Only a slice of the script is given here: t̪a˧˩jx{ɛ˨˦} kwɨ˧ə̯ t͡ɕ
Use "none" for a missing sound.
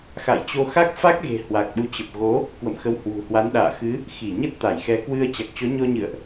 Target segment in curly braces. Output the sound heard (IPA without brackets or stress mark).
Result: ɛ˨˦